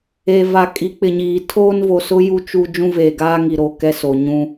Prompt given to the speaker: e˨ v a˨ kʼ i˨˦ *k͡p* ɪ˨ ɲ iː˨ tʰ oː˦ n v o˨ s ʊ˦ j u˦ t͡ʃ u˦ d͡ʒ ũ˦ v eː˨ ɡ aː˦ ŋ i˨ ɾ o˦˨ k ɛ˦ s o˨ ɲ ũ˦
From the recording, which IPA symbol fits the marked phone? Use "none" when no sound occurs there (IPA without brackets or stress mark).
k͡p